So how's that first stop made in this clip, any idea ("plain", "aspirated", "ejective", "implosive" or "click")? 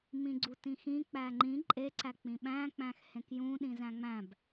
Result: click